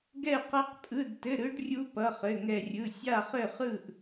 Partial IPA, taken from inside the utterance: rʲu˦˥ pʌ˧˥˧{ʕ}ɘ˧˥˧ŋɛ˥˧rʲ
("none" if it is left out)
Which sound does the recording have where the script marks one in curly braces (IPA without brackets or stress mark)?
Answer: χ